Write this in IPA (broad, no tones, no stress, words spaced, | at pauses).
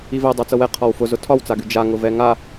ivɛ dˤat͡sɤwɛ qʰɒwfʊ zʊtʰɒwt͡saɡy d͡ʒa ŋʊvɛŋa